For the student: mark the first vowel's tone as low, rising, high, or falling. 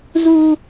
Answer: high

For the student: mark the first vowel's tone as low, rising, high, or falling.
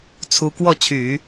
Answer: rising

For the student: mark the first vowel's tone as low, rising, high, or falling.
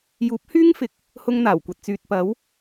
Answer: rising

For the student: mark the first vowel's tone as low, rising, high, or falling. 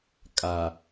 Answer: low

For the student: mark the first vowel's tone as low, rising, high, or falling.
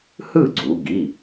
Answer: falling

